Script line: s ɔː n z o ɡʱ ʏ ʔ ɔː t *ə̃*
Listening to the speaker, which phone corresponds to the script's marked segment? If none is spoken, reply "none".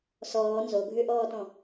ɔ̃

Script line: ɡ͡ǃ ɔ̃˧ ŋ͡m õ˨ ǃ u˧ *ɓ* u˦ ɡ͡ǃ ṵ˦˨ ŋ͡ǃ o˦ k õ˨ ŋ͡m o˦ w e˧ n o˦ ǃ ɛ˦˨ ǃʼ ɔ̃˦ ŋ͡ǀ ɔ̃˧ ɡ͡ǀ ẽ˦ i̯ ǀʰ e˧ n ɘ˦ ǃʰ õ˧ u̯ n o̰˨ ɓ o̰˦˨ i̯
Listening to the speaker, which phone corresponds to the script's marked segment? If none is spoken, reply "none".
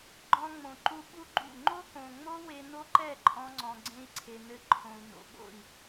ɓ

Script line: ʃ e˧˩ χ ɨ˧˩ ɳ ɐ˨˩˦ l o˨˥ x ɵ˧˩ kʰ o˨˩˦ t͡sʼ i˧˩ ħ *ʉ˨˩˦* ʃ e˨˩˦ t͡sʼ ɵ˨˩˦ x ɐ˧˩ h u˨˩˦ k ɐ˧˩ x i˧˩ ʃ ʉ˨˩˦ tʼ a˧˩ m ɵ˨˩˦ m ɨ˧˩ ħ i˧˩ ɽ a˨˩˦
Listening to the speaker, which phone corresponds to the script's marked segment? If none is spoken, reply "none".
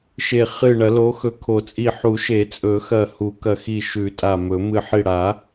u˨˩˦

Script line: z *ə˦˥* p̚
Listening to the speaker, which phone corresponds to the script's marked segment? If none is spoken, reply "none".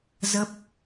ə˦˥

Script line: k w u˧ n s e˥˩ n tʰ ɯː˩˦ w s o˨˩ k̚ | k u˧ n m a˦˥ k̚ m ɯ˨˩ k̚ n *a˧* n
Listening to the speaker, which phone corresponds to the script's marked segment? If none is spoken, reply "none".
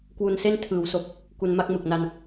a˧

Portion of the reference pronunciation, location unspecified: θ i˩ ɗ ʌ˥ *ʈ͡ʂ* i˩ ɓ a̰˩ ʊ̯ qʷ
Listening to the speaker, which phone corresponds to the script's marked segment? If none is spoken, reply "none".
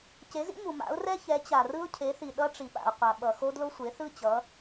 ʈ͡ʂ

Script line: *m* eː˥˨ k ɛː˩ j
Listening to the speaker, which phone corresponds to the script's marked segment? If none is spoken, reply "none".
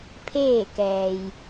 pʰ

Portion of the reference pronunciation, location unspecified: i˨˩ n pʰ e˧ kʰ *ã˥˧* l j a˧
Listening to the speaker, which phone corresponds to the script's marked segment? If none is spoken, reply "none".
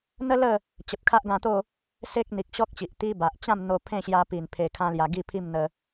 ã˦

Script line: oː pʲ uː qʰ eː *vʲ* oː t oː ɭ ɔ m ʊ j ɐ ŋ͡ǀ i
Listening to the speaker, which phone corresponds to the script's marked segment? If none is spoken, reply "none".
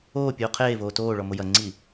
v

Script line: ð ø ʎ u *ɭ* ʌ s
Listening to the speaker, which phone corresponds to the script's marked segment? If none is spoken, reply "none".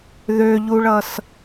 ɭ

